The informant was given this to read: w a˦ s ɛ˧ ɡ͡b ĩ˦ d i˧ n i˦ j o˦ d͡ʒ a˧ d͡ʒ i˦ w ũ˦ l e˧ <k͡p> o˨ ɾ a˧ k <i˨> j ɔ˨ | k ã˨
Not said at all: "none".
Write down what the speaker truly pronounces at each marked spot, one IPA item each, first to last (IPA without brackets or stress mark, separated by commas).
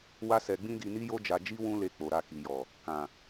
k͡p, i˨